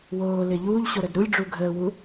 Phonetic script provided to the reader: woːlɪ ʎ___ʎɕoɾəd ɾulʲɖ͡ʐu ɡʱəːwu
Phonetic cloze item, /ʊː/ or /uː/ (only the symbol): uː